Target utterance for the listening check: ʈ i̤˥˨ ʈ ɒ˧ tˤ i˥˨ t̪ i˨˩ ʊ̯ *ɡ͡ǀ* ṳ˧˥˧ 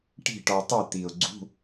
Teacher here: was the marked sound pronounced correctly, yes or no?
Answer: yes